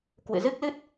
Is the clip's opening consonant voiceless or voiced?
voiceless